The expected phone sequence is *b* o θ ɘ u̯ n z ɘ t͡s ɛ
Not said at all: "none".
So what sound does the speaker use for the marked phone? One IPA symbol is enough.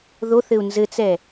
ð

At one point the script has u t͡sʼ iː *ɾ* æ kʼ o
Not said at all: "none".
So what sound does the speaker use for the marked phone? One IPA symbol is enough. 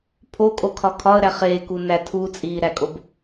ɾ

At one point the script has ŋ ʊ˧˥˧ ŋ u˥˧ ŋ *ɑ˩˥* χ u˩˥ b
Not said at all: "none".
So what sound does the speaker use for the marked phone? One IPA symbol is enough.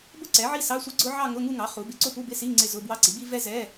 ɑ˩˥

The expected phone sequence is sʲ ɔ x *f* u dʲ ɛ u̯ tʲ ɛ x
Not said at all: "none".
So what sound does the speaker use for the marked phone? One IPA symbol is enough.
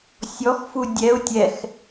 f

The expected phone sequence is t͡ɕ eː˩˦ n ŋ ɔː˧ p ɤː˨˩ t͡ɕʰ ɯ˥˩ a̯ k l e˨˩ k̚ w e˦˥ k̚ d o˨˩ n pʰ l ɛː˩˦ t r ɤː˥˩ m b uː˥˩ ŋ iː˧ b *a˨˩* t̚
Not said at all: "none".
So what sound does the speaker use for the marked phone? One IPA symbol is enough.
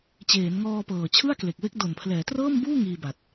a˨˩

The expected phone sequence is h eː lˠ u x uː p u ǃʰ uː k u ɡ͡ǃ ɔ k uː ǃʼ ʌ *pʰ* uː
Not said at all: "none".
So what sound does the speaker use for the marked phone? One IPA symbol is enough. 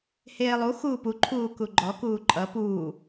p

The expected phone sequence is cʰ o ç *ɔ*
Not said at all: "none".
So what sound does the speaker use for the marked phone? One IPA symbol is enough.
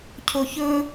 ɵ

